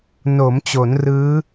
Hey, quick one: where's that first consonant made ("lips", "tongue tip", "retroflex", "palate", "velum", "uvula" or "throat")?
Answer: tongue tip